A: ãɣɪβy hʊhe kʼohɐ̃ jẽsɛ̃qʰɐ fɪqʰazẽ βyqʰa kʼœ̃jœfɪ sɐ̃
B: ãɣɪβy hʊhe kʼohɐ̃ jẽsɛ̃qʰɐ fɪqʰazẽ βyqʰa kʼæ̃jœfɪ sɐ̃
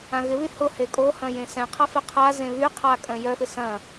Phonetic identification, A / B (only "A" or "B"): A